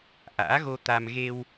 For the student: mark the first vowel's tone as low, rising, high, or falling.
rising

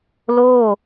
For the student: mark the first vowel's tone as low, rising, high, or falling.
falling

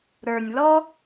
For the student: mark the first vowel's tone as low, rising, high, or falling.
low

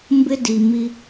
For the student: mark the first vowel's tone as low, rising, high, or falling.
high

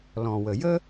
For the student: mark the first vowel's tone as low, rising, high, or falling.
low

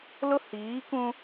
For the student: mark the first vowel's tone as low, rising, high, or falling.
high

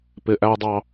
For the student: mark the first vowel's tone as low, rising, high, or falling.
high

